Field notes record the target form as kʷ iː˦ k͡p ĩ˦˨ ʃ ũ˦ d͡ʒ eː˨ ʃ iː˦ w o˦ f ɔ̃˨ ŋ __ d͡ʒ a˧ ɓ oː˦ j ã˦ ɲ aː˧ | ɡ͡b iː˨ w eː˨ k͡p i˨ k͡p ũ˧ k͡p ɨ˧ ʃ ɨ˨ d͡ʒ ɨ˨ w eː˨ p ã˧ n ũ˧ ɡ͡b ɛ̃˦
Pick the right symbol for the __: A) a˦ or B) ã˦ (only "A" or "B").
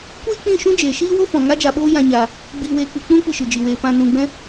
A